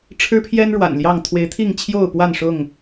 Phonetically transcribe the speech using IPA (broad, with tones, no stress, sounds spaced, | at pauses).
ʈ͡ʂʰ ɻ̩˦ pʰ j ɛ˦ n ɻ w a̰˨˩ n l j ɑ˥˨ ŋ t̪ʰ w e˨˦ ɪ̯ t̪ʰ i˥˨ ŋ t͡ɕʰ j o˥˨ ʊ̯ p w a˥˨ n ʂ ʊ˥˨ ŋ